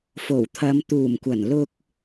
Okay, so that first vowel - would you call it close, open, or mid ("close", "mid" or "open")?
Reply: mid